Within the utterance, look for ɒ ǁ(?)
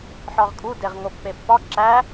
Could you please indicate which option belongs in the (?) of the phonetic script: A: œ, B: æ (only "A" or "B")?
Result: B